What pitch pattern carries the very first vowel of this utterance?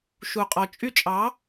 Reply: low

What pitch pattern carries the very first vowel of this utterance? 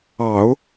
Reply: low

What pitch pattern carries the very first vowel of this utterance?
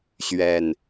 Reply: low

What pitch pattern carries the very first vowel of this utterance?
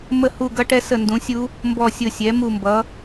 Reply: falling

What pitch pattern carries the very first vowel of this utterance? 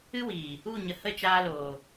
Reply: high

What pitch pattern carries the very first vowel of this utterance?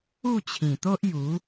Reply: falling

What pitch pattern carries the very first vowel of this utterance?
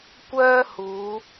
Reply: high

